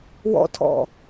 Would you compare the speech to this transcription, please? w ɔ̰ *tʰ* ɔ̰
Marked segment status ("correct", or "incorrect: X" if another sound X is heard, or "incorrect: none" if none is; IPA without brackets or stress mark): correct